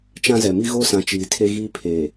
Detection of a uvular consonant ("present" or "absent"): absent